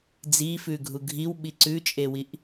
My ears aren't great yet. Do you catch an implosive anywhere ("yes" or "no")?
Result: yes